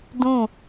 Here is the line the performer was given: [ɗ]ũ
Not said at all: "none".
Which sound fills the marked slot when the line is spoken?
d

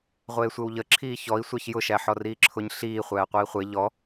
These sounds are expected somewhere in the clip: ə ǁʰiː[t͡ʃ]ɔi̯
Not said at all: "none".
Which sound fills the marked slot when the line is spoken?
ç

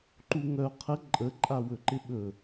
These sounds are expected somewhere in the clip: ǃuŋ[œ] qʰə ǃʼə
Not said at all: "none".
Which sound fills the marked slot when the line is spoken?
œ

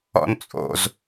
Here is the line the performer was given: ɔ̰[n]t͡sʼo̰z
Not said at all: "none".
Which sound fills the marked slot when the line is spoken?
n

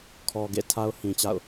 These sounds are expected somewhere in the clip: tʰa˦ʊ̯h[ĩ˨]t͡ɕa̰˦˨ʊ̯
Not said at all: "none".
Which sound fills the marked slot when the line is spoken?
ĩ˨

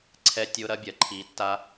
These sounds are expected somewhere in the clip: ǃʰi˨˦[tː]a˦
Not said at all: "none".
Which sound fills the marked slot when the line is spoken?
tː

